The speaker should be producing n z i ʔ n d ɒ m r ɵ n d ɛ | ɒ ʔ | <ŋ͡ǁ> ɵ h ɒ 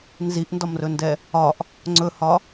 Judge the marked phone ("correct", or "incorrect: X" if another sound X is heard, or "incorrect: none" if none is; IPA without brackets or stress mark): incorrect: ŋ͡ǀ